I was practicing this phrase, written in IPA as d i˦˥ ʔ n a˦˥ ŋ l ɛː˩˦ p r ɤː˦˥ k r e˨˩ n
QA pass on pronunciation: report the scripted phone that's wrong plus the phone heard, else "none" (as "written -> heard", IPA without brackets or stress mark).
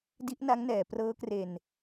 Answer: l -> n